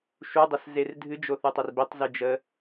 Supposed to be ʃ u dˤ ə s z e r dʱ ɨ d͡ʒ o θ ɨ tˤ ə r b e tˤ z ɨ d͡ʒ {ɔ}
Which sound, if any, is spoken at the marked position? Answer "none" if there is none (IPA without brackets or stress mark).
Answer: ə